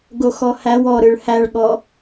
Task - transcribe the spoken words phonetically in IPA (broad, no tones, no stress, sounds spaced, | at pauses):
ɡ o x ɔ h æ w ɔ ɾ ɯ ɭ h æ ɭ ɠ ɔ